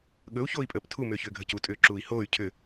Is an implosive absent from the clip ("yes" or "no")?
no